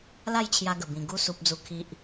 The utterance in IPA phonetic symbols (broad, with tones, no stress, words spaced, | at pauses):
la˥˧jt͡ɕʰja˧ɡə˨˩bĩ˨˩ ɡu˧su˨p̚d͡zu˨˩ kʰi˨ʔ